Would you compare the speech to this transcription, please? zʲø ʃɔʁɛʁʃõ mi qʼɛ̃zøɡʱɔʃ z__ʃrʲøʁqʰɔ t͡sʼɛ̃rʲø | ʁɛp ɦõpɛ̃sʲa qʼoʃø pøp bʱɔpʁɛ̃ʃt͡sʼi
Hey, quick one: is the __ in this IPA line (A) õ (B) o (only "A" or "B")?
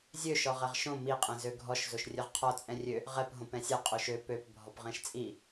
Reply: B